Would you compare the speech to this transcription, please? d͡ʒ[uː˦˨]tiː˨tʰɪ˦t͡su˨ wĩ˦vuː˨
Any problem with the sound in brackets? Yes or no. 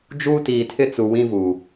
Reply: yes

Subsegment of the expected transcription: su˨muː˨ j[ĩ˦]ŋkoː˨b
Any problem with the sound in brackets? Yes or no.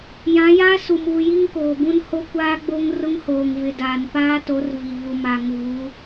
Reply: yes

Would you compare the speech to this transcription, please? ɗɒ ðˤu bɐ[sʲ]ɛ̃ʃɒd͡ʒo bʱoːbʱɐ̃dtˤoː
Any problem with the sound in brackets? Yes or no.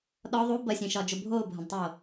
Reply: no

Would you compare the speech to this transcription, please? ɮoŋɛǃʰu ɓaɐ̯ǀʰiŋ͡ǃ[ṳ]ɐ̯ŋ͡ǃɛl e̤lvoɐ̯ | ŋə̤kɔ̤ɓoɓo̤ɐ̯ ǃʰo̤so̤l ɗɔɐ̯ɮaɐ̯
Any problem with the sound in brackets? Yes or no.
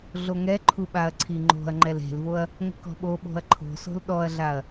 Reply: yes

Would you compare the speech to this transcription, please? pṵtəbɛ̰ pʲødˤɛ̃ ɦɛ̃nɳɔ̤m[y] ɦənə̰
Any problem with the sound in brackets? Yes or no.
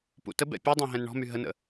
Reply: no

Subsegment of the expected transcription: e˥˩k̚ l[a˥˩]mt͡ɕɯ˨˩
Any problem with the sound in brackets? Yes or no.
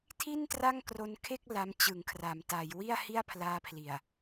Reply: yes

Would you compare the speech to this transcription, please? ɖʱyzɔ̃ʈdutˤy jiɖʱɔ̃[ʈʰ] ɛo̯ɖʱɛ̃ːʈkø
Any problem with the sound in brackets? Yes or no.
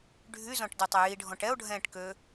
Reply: yes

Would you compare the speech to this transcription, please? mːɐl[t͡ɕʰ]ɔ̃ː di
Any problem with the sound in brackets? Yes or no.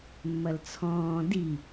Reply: yes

